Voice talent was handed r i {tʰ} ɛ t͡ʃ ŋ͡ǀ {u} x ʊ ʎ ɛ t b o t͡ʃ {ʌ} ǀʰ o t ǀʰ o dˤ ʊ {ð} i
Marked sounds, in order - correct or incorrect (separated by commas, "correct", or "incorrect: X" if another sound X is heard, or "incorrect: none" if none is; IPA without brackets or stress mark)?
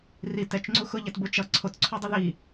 incorrect: t, correct, correct, correct